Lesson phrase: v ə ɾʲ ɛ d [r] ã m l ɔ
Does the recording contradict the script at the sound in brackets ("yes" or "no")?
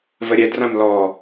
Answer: no